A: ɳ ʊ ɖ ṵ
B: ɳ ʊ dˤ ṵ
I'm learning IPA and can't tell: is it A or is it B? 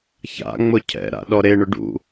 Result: A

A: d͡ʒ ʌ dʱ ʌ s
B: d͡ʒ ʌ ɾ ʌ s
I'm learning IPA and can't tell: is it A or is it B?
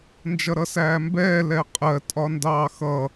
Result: B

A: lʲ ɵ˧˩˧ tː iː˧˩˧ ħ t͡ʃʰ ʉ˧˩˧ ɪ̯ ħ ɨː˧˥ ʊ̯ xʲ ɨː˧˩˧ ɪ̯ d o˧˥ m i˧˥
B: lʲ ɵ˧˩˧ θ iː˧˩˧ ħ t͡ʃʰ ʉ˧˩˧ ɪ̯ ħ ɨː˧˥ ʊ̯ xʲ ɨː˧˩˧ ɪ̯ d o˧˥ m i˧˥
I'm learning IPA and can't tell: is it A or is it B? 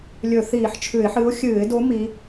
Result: B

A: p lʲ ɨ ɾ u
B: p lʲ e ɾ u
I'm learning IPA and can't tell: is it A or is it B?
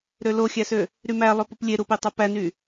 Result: B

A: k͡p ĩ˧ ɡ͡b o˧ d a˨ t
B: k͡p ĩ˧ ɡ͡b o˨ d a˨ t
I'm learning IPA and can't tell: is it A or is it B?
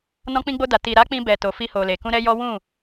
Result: A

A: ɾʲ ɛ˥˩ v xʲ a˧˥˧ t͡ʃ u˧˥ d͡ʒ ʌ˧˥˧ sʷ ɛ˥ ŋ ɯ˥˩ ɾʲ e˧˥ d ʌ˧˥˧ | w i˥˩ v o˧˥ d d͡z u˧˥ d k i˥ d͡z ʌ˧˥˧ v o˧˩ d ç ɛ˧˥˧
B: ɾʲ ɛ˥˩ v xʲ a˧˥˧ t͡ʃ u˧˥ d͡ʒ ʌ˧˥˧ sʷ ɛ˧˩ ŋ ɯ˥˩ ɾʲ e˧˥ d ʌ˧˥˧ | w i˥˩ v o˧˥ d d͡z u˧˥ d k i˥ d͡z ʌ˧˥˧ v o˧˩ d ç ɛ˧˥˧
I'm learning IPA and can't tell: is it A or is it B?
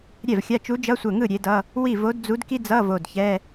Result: B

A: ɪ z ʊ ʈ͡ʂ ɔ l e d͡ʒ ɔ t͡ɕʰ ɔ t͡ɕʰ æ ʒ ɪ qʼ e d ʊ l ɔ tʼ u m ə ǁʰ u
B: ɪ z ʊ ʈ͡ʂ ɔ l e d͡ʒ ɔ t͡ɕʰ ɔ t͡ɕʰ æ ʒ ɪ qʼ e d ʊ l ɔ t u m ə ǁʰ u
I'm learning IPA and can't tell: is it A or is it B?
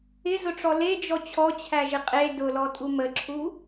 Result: A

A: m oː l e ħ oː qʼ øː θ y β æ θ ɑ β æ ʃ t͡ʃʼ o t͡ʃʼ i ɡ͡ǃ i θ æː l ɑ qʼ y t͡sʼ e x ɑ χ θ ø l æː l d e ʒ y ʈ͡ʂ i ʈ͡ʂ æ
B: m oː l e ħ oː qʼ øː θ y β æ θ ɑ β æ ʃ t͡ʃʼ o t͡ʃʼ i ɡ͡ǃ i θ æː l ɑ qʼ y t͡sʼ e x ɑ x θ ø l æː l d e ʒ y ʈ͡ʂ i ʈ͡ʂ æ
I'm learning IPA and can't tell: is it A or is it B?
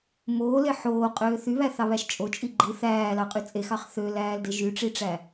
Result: A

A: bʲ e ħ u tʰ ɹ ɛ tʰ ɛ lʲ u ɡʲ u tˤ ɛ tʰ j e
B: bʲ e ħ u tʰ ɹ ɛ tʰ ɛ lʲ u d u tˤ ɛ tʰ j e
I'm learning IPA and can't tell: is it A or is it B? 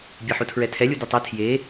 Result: B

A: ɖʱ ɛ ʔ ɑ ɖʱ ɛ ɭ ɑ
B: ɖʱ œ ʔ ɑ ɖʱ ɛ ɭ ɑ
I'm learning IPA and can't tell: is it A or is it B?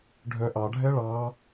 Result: B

